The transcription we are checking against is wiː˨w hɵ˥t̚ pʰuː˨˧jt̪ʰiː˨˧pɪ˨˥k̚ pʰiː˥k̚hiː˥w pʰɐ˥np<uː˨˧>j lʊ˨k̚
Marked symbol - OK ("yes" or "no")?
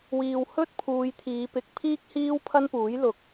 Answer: no